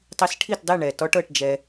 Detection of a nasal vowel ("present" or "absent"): absent